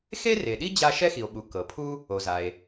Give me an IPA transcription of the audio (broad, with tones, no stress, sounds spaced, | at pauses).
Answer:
x e˥ r e˩ ɗ i˥ d͡ʑ a˥ ʃ ɛ˥ x i˩ o̯ ɓ u˩ k ɤ˩ pʰ u˥ | o˩ z a˩ e̯